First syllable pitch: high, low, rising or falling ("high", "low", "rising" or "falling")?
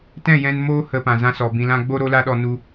falling